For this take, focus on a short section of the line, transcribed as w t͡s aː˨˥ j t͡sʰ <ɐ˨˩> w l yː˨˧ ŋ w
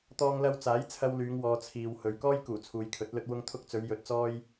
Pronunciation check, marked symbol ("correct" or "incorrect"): incorrect